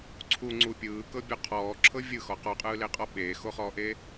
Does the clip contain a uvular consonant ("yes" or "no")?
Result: yes